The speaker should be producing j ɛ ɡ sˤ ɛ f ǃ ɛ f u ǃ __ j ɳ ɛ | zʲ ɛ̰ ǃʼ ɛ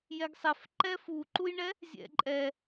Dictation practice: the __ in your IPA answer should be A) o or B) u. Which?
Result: B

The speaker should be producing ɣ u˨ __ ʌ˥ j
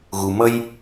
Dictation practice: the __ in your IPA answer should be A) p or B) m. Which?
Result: B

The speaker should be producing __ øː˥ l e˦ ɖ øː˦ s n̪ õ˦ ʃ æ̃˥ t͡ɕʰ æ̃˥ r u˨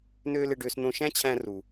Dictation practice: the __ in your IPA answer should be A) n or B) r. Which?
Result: A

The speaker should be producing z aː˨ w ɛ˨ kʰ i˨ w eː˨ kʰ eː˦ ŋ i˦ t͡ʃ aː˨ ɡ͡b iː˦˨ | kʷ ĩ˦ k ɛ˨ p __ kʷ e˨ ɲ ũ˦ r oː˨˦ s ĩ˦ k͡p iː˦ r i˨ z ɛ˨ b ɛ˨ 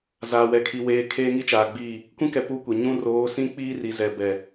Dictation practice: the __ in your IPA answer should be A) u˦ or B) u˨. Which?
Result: A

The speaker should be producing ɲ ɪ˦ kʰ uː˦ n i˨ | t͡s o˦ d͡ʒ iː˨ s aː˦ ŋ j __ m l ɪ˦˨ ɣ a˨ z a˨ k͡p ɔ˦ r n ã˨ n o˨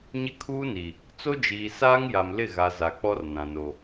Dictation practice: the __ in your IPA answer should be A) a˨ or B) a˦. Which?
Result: A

